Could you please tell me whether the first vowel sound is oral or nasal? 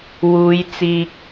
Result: oral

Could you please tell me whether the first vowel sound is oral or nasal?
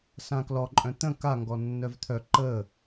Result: nasal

